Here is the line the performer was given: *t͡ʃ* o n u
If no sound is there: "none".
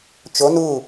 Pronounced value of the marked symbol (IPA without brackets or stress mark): t͡ʃ